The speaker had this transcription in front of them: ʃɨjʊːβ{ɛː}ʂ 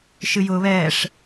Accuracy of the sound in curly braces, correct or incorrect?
correct